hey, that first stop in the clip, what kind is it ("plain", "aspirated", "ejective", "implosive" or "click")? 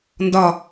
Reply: plain